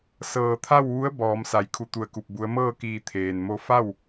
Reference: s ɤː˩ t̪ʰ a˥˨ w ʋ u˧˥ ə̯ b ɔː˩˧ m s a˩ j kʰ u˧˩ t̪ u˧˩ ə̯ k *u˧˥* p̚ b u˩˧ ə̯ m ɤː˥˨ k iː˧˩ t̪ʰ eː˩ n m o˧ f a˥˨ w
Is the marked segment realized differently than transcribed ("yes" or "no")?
yes